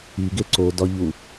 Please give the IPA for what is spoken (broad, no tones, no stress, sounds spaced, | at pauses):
i ɡ e ǀ o d ɒ ʎ u